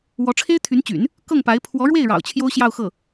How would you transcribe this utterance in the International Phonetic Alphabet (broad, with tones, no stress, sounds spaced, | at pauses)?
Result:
w ɔ˧˥ ʈ͡ʂʰ e˥ ɪ̯ t̪ʰ y˧˥ n t͡ɕ y̰˨˩˦ n | k ɤ˥˩ ŋ p a˧˥ ɪ̯ pʰ w ɔ˧˥ ɻ w e˥˩ ɪ̯ ɻ ɑ̰˨˩ ʊ̯ t͡ɕʰ j o˥ ʊ̯ ɕ j ɑ˥˧ ʊ̯ x ɤ˥˩